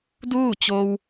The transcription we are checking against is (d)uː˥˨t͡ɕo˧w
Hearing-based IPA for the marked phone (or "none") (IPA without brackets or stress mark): d